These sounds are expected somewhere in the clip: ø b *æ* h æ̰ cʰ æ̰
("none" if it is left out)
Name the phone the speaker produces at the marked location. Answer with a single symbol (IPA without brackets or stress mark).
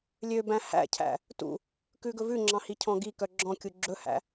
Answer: æ̃